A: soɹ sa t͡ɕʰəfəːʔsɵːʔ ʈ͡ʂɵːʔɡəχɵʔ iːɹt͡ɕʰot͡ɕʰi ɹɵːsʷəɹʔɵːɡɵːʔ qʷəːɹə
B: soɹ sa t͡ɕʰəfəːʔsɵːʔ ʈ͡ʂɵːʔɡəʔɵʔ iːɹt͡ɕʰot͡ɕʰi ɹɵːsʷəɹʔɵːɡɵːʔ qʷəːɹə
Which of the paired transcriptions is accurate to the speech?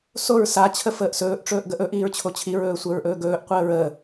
B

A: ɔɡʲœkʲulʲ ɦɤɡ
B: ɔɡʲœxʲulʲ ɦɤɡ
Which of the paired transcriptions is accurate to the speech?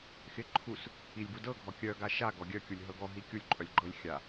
A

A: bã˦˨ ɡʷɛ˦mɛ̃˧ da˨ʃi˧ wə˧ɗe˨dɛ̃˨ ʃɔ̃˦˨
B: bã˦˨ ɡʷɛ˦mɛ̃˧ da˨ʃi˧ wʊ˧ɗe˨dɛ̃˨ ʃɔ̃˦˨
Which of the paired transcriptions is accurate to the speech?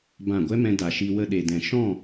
A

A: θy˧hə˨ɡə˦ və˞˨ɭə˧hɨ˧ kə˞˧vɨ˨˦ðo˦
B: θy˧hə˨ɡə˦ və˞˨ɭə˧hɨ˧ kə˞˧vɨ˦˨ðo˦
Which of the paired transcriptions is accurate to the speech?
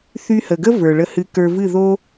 B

